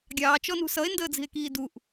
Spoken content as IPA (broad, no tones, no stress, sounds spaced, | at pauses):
ɡʲ ɑː t͡ʃ ɔ n ṳ s ʌ e̯ n d əː d͡z i̤ e̯ k iː d u ʔ